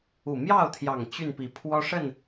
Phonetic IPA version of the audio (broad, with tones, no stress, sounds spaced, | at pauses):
u˨˩ m j ɑ˥˨ ʊ̯ t̪ʰ j ɑ˨˩ ŋ t͡ɕ y˥˨ n p i˨˦ pʰ w ɔ˦ ʂ ə˥˨ n